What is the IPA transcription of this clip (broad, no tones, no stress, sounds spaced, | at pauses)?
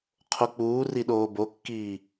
qʰ o k͡p uː r i ɗ oː b o kː iː